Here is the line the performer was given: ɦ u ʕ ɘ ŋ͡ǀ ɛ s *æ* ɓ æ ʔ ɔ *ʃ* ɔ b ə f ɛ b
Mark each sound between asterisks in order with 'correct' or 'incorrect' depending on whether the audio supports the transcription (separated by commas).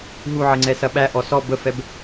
incorrect, incorrect